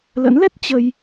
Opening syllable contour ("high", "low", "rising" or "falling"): rising